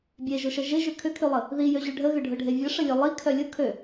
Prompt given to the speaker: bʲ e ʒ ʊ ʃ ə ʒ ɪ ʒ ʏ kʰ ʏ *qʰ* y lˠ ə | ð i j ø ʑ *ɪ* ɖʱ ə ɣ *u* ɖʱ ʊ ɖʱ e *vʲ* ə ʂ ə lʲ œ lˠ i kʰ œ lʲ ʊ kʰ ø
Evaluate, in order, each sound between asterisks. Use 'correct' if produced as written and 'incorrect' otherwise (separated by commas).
incorrect, incorrect, incorrect, correct